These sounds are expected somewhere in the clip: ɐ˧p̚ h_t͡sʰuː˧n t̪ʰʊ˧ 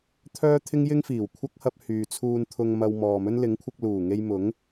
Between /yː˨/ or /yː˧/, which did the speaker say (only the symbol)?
yː˨